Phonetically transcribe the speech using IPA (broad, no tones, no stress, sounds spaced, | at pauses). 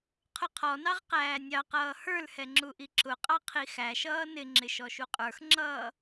qʰ ʊ qʰ ɔ n ɑ ʁ q æː nʲ ɑ q ʌː h ə˞ l h ɛ ŋ͡ǁ u ʔ i ǁ ʊ qʼ ɑ qʰ i x æ ʃ ʌː n ɪ ŋ͡ǁ ɪ ʃ ɔ ʃ u qʼ ə˞ x ŋ͡ǁ ʌː